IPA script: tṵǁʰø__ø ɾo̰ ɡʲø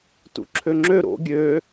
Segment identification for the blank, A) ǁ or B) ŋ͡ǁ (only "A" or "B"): B